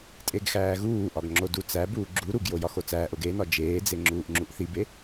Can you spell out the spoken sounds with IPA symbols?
tʼ e ɡ x æː ɣ uː ʔ ɒ ɡ ŋ͡ǁ o d u t͡s æ b uː ɡ͡ǁ u ɾ u ɡ j o j ɒ x o t͡s æː ʔ o ɡ e n ɒ d͡ʒ eː d͡z e ŋ͡ǁ uː ʔ ŋ͡ǁ u ʔ θ i b e

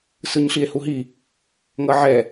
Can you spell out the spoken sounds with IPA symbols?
s ɯ ɲ ɬ i e̯ h u ɦ i | ŋ ʌ ʕ ɛ

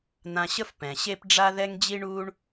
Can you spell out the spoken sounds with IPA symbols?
n̪ ã˧ ɕ ə˥ f p ɛ̃˩ ɕ e˥ p ɖ͡ʐ a˥ ð ɛ˥ ŋ d͡ʑ i˥ ɳ uː˥ ɳ

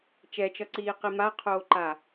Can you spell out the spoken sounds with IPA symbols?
t͡ʃ ɛ t͡ʃ ʌ ǀ iː q i m a qʰ oː ǃ a

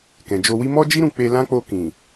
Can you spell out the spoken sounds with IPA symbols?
k ɛ̃˨ d͡ʒ o˧ w i˦ m ɔ˦ d͡ʒ i˦ ɾ ũ˦˨ k͡p e˧ l ã˦ k͡p o˧ k ĩ˨

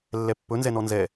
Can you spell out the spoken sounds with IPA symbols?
lː ɛ pː ɵ n z ɛ n ɔ n z ɛ

